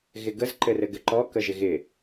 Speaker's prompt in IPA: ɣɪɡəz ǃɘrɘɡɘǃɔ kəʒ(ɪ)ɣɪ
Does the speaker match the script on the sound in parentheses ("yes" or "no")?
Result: yes